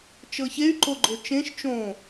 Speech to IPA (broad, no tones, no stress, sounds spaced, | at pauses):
t͡ʃ ɤ ç e y̯ ǃ o ɡ͡ǃ o t͡ʃ ẽ ʃ t͡ʃ õ